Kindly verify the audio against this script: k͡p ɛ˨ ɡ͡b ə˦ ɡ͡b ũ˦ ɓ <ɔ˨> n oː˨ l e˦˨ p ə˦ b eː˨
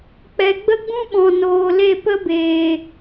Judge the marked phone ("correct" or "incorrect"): incorrect